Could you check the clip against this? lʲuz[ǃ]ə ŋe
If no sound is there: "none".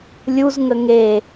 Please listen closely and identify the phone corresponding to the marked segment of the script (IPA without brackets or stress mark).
ŋ